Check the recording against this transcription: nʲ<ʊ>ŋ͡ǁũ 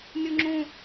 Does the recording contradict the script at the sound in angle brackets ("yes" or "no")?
yes